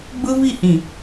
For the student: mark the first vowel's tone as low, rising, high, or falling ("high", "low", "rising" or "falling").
high